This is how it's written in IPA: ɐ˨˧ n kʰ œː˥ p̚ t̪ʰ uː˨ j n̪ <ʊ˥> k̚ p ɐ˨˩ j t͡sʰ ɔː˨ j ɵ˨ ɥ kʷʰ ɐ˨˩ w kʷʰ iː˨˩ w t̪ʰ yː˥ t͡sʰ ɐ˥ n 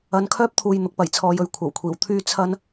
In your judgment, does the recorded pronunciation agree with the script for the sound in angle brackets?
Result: no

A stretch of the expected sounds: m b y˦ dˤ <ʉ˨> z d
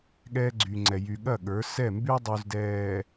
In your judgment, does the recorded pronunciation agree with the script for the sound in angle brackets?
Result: no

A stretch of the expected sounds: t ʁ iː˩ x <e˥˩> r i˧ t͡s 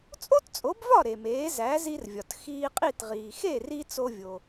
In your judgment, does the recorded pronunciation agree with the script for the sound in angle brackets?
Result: yes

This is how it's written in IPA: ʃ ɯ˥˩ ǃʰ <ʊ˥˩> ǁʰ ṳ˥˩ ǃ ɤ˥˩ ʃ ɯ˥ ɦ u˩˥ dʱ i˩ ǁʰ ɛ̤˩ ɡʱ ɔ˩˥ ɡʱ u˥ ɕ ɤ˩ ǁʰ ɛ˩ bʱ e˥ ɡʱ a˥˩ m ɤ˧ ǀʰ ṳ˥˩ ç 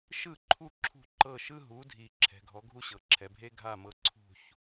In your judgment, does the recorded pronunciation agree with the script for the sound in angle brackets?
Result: no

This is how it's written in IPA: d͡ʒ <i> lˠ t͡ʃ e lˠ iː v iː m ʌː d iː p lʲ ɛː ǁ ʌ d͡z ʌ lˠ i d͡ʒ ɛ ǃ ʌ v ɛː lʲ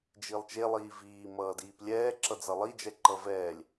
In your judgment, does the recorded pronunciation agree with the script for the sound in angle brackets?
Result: yes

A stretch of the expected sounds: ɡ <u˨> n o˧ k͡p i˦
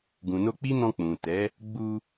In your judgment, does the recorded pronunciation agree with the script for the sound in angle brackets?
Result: no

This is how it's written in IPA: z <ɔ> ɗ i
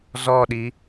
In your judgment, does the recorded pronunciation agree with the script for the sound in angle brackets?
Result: yes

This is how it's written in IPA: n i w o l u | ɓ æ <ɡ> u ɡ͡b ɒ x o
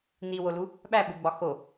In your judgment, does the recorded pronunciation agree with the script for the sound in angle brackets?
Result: no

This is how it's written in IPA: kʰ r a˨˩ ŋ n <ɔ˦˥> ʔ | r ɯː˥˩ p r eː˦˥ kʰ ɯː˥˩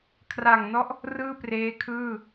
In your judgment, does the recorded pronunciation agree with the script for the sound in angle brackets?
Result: yes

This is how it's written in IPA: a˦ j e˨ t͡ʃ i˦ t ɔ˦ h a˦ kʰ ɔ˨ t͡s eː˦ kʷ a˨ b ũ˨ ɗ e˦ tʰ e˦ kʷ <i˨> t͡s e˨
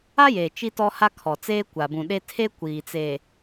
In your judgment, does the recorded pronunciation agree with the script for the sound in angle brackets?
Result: no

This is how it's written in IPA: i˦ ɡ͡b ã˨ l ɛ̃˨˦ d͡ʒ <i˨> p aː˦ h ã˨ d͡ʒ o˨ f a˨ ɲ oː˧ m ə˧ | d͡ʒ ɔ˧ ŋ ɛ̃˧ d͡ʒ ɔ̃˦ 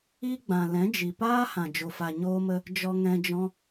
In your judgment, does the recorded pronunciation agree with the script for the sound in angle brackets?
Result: yes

